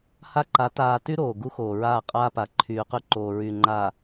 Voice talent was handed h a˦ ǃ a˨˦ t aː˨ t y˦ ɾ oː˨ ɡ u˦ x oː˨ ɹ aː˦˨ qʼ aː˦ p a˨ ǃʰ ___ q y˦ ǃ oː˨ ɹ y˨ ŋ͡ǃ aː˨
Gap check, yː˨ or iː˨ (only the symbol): yː˨